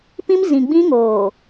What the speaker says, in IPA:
p ĩ˦ m z ĩ˨ ɡ͡b ĩ˦ ŋ oː˨

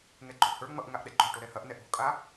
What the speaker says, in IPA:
ŋ ɛ ɡ͡ǃ o̤ ʔ h ə˞ ŋ͡m ʌ ʔ ŋ a ʔ ɗ ɛ ɡ͡ǃ o̤ ʈ o ɾ ɛ h ɐ ʔ n ɛ ʔ o̤ kʼ a

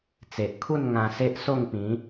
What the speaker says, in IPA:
t͡s e˨ ʔ kʰ u˥˧ n ŋ ã˧ s e˦ ʔ s o˥˧ ŋ p ĩ˨˦

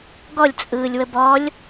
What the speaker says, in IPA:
ɡ ɔ lʲ t͡sʼ ɯː lʲ w ə b ɔ lʲ

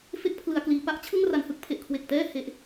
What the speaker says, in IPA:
f e˦˥ k̚ pʰ l ɯ˩˦ a̯ k l iː˩˦ p a˥˩ ʔ t͡ɕʰ ɯ˥˩ ŋ r a˨˩ n h ɯ˥˩ k̚ pʰ e˨˩ ʔ kʰ w e˨˩ k̚ t ɛː˥˩ h e˦˥ ʔ

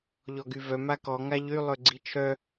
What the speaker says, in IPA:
ʎ ɔ ɡ y v œ m a k ɔ ŋ a ʎ y lˠ ø ɡ͡ǀ i t͡ʃʰ œ

